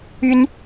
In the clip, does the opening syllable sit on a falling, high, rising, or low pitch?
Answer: high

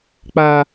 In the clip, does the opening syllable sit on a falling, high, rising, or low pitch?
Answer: low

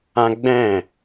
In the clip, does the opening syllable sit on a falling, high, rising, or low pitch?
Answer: high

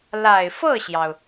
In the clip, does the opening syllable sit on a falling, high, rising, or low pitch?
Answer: low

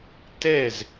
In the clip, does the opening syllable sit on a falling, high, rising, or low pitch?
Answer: falling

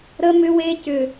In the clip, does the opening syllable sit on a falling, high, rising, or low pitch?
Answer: high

